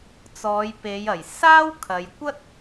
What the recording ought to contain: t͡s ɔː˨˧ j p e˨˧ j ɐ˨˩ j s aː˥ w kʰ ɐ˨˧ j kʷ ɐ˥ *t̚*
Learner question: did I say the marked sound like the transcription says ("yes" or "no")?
yes